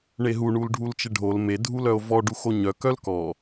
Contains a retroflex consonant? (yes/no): yes